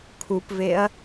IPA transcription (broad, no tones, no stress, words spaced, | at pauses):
kʰupveɐ̯